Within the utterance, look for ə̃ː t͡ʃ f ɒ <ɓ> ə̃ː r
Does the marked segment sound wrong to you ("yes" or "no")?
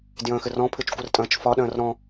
yes